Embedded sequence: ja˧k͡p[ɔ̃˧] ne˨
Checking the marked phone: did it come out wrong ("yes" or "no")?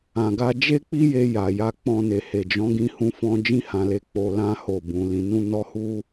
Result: no